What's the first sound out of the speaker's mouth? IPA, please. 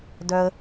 d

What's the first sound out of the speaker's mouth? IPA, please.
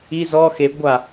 i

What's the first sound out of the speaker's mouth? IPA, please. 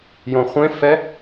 j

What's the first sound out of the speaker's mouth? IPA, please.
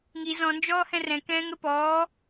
ŋ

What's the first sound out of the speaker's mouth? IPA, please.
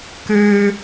k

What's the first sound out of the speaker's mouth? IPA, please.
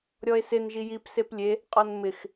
ɾʲ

